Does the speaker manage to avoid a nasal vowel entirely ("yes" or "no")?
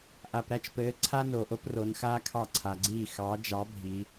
yes